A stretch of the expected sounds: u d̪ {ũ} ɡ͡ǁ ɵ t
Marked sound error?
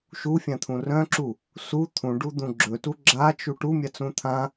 no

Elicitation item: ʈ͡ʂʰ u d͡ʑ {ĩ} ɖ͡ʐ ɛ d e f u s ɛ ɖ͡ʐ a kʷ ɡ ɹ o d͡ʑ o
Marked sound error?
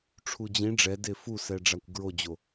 no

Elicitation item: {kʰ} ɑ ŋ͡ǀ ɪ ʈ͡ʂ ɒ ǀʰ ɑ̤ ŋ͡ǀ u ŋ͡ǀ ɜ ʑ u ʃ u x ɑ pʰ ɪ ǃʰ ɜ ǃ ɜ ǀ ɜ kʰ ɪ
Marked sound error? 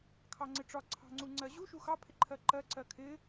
no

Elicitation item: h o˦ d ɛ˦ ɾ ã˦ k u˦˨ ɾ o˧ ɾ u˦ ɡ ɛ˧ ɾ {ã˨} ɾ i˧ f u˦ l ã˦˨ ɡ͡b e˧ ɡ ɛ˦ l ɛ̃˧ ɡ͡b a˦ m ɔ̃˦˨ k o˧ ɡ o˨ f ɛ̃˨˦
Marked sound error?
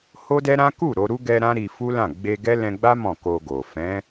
yes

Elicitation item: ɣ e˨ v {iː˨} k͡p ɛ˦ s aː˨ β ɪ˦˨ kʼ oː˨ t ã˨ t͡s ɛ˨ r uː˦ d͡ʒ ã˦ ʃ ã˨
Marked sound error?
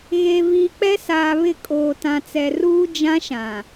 no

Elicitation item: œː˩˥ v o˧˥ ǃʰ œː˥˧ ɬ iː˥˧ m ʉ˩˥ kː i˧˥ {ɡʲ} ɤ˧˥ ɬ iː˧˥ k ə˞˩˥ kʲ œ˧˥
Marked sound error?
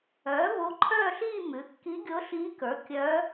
no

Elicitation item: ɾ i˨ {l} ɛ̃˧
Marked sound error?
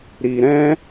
yes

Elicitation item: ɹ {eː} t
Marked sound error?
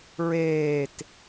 no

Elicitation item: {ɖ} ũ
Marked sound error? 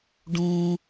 no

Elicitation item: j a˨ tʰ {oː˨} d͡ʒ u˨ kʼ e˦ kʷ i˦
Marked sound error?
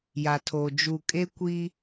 no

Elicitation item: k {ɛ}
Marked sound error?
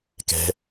yes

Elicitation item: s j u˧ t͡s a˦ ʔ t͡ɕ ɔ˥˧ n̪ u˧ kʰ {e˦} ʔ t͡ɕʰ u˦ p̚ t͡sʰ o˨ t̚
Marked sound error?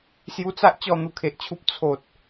yes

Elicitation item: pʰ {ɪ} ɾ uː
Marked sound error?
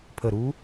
yes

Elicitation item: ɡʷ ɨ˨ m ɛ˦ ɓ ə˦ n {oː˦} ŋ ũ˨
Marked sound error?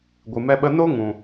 yes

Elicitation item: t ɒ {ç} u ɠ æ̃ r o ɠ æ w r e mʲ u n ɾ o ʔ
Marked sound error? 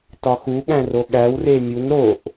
yes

